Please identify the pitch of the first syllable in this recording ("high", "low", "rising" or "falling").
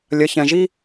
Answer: low